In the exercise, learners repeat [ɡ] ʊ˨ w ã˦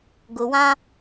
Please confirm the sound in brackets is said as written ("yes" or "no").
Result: yes